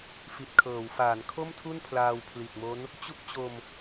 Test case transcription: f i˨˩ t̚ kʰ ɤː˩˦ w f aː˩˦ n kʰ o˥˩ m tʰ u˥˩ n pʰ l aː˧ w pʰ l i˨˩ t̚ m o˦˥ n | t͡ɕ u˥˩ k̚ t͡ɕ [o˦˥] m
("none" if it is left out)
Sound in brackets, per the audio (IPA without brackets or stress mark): o˧